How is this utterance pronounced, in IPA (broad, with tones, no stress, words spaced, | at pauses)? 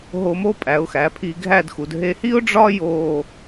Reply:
ɦo˧mo˥pʼæ˩˧ʊ̯xæ˩˧ pʰi˧ɡʱæ˥˧dxu˩˧d ɦe˧hi˥ʊ̯ɖ͡ʐɒ˥ jo˥˧